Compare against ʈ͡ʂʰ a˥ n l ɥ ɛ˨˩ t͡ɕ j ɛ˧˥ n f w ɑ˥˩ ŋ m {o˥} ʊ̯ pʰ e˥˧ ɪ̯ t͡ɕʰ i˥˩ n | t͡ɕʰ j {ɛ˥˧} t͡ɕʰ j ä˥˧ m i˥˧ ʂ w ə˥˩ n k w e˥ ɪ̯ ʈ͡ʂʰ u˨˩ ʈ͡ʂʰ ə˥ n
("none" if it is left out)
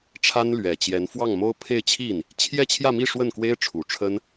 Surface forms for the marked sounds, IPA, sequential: o˥, ɛ˥˧

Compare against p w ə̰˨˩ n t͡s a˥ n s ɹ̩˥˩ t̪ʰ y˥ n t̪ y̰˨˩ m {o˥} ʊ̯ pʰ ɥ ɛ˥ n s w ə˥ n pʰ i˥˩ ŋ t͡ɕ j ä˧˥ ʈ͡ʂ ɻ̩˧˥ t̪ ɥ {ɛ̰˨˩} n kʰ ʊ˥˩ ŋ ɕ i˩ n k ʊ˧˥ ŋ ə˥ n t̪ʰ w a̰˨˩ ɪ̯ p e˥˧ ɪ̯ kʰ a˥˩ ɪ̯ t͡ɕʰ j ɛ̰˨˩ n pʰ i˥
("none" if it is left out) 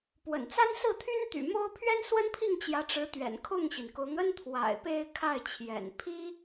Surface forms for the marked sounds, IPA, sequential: o˥, ɛ̰˨˩

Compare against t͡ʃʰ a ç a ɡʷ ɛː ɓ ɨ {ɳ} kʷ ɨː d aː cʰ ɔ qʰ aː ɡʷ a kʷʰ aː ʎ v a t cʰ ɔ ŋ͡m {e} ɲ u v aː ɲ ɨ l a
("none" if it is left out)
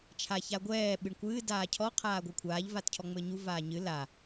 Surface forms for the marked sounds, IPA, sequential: ɳ, ɘ

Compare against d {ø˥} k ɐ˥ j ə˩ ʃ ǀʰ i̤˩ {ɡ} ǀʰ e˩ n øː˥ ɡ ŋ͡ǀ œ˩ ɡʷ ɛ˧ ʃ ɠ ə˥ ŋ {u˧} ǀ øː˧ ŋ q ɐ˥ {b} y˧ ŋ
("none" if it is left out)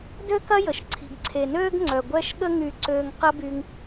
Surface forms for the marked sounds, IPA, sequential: ø˥, ɡ, y˧, b

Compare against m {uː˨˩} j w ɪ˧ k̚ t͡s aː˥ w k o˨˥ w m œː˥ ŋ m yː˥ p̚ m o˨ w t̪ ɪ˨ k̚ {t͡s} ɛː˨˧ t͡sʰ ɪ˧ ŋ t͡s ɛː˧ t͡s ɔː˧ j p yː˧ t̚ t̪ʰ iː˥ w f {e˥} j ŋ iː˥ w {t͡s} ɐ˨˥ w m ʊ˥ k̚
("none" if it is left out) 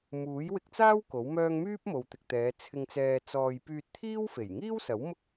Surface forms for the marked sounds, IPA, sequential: uː˨˥, t̪, e˨˩, s

